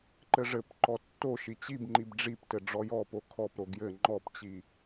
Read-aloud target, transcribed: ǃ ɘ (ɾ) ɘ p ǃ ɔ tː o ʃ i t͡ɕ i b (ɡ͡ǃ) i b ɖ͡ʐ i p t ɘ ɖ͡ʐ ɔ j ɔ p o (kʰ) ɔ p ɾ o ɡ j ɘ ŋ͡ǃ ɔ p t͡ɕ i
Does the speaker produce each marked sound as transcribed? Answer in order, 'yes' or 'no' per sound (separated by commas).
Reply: no, no, yes